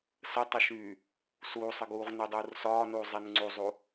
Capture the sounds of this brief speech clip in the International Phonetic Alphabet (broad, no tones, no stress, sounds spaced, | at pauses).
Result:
s ə tˤ ə ʃ yː | s uː sˤ ə ɡ uː ʁ n y dˤ uː r s ɒː n uː zˤ i n ŋ͡ǀ u zˤ u